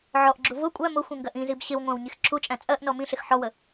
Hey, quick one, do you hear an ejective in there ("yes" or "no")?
yes